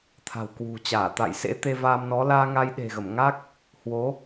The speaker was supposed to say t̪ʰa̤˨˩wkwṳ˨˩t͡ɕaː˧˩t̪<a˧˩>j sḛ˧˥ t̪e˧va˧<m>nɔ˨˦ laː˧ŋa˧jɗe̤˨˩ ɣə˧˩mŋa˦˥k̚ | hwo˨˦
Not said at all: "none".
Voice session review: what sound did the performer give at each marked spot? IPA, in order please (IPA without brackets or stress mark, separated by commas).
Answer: a̰˧˨, m